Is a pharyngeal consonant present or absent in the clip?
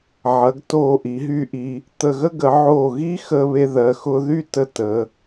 present